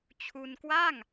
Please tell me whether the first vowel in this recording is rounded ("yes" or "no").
yes